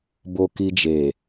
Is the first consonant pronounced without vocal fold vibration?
no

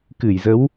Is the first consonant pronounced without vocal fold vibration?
yes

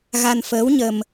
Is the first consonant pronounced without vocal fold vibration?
no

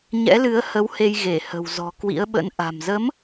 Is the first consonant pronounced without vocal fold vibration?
no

